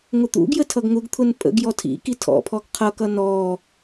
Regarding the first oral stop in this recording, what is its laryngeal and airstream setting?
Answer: plain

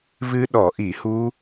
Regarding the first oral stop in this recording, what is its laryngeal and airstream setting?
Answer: implosive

